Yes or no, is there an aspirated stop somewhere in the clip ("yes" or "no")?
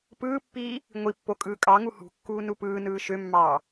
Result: no